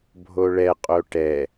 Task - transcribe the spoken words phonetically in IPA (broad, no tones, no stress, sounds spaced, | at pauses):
bʱ o ɭ ɛ qʼ o ʈ ɛ